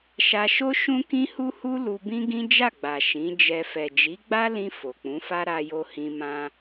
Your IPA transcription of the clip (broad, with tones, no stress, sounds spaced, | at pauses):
ʃ a˧ ʃ o˦ ʃ ũ˦ k ĩ˦ h u˦ h u˦ l u˧ b ĩ˦ ɡ ĩ˦ d͡ʒ a˦˨ ɡ͡b a˨ ʃ ĩ˨˦ d͡ʒ ɛ˧ f ɛ˨ d͡ʒ i˨˦ ɡ͡b a˦ l ĩ˧ f o˨ k͡p ũ˨˦ f a˦ ɾ a˧ j o˧ h ĩ˧ m ã˧